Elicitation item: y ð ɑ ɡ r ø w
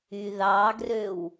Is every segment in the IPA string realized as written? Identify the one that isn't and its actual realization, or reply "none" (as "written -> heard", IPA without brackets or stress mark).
none